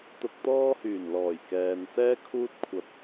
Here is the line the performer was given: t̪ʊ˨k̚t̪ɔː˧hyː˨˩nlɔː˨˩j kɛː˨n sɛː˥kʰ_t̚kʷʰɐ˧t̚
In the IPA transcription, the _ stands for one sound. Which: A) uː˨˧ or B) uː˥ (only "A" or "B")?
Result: B